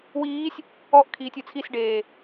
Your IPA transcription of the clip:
w iː sʲ | ɔ ʔ kʰ iː tʲ u t͡sʰ i s ɖ eː

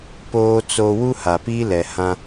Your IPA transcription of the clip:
p oː˦ t͡s o˦ w u˦ h a˨ p i˦ l ɛ˨ h ã˦

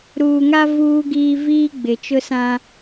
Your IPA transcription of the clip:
ɾ uː˨ ŋ a˦ v uː˦ ɡ iː˦ v iː˦ ɡ͡b ɪ˨ t͡ʃ ʊ˦ s ã˦

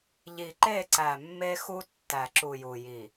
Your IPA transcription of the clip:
ʎ i˨ ǃ e˦˨ ǀ æ˨ mː e˦ x u˦ tː æ˨ ǁ u˨ j u˨ j i˨

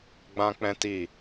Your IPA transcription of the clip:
ɡ͡b ã˦ k͡p ɛ̃˦ t i˦˨

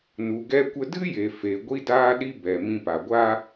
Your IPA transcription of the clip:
n u˨ ɡ ɛ˧ kʷ ə˧ d ɨ˦ j e˨ f e˨ ɡʷ i˧ d aː˧ ɗ i˧ b ɛ˨ m ĩ˧ p a˨ ɡʷ aː˦

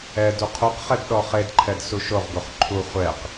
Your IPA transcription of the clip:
ɛ d u qʰ u q χ ɛ d ɗ ɔ χ e d ǃʰ ɛ d s u ʃ o ʁ ɡ o χ ǃʰ u χʷ ɛ q

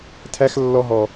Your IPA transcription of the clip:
tʰ æ˦ x lː ɔ˧ ɦ ɔ˨

